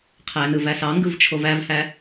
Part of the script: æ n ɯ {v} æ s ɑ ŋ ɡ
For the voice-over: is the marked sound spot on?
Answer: yes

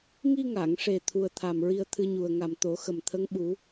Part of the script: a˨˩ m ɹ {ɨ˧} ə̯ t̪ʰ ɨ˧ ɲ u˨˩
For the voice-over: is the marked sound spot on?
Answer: no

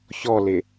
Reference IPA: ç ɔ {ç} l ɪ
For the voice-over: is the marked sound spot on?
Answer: no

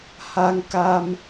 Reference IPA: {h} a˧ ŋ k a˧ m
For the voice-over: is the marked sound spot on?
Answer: yes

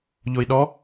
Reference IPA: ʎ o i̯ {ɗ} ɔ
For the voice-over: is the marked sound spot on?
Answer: yes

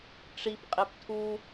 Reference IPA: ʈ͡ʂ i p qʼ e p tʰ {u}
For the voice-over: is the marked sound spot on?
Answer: yes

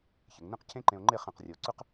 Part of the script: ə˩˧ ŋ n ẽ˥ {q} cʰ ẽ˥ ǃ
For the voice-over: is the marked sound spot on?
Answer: yes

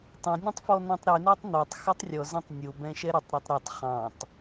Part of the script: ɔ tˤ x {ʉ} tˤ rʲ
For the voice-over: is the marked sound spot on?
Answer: yes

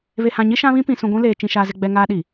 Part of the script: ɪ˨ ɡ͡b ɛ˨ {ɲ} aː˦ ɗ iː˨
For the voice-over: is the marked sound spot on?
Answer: no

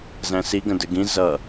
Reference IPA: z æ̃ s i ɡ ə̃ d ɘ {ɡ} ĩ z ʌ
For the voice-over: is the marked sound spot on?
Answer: yes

